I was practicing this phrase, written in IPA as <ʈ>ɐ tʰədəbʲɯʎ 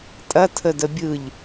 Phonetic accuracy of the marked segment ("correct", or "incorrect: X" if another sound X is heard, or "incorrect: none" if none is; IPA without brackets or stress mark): incorrect: tʼ